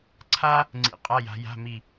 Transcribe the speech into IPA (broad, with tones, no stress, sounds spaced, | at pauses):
ǀʰ a˥ | ŋ͡ǀ ḭ˦˨ qʼ a˧˥˧ j a̤˨˦ j a̤˧˥˧ m i˦˨